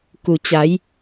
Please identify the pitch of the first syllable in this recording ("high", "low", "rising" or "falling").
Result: low